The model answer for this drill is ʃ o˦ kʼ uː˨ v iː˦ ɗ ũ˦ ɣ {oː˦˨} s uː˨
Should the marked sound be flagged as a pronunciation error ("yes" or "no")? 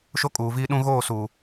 no